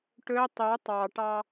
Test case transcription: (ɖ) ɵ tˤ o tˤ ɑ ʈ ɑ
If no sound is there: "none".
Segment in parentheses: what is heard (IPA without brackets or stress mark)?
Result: ʈ